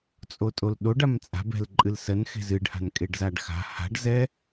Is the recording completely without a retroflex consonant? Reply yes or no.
no